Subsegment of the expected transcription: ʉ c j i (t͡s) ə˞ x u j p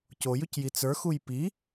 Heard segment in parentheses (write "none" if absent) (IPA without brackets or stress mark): t͡s